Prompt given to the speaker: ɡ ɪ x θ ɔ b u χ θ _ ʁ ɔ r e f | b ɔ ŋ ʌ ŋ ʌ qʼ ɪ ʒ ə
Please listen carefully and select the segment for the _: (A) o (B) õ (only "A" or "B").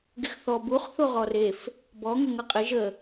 A